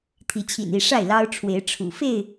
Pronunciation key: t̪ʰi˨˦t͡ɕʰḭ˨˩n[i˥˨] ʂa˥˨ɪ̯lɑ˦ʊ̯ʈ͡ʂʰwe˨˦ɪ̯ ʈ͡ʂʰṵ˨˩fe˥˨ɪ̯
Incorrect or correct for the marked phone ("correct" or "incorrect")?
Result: correct